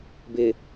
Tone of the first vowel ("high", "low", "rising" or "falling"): low